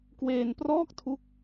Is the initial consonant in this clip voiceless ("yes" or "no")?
yes